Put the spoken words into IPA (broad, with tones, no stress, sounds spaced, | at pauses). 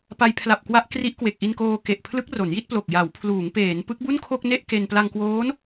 p a˧ j pʰ l a˨˩ p̚ k w a˦˥ ʔ k r i˦˥ ʔ k w e˨˩ k̚ ʔ i˧ n k oː˧ k e˨˩ ʔ pʰ l ɯ˦˥ k̚ r o˩˦ n j i˥˩ t̚ p l o˨˩ k̚ j a˩˦ w pʰ l uː˩˦ ŋ p eː˩˦ n p ɯ˦˥ k̚ b u˥˩ n kʰ o˥˩ k̚ n e˥˩ ʔ k e˧ n p l a˧ ŋ k w oː˦˥ n